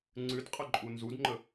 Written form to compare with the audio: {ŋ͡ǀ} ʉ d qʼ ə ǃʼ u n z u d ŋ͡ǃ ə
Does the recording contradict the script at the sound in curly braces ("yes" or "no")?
no